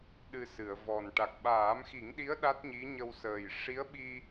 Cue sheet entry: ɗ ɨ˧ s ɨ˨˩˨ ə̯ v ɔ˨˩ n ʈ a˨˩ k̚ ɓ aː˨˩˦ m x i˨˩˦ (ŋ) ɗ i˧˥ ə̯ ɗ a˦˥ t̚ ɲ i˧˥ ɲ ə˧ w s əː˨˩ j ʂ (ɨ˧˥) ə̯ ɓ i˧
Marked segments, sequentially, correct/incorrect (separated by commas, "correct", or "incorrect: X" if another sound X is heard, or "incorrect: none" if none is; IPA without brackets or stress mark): correct, incorrect: i˧˥